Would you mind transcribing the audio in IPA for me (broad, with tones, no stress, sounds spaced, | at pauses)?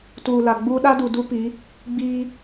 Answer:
t uː˨ l a˨ ɡ͡b u˦ ɗ a˦ d u˨ d u˦ p i˨˦ | ɡ͡b iː˦